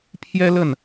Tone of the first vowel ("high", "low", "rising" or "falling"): high